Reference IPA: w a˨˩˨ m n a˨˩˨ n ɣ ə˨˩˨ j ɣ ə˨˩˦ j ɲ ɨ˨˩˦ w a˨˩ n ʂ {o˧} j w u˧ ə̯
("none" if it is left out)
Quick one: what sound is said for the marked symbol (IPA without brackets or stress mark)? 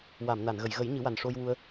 o˧